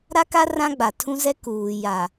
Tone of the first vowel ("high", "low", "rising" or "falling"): high